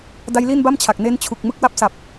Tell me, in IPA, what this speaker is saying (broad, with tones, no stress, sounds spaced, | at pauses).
d a˦˥ j l i˥˩ n b a˥˩ m t͡ɕʰ a˨˩ k̚ n eː˦˥ n t͡ɕʰ u˨˩ k̚ m ɯ˦˥ k̚ w a˦˥ p̚ s a˨˩ p̚